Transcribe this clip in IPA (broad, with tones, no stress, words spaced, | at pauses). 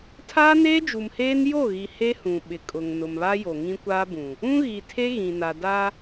tʰaː˦neː˦d͡ʒu˨mheː˦n jo˦˨ɣi˨ he˦hũ˨ ɓɪ˨kʼʊ˨ŋ nʊ˨mβa˦ jo˨ ŋĩ˦kʷaː˦bũ˨ | ũ˦ɣi˨tʰe˦ ɣĩ˨na˨ da˦